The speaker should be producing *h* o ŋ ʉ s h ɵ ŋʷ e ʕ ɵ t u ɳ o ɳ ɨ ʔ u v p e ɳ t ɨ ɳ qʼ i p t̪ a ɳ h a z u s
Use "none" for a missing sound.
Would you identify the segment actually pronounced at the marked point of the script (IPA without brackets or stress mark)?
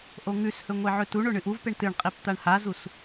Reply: ʔ